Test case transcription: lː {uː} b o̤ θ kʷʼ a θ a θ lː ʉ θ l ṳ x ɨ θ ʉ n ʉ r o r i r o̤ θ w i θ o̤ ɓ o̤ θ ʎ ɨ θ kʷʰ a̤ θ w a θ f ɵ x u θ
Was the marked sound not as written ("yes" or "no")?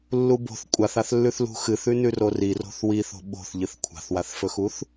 yes